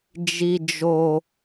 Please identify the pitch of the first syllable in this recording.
high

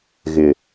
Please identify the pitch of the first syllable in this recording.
low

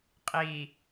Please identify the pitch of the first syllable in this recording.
low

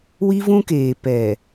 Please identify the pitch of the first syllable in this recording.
high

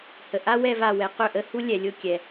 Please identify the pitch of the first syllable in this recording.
low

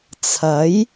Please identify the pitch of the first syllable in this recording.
rising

